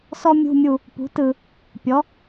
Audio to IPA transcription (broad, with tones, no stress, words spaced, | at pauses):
sɔ˥mʲṳ˧˥˧mʲu˦˨ | pṳ˩˥tɯ˨ | pʲɔ˩˥